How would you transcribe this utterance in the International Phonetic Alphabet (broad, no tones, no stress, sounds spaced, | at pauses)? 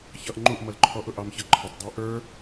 ç ʌ ʔ ŋ͡ǃ u ʔ m ʌ l ǃʰ ɔ ʔ ʊ ʔ ɑ m ç ʌ ǃʰ ə tˤ dˤ æ ʔ ə˞